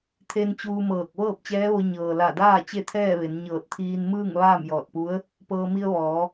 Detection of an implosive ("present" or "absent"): absent